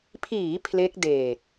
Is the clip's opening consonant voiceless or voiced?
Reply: voiceless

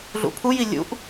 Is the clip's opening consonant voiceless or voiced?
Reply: voiced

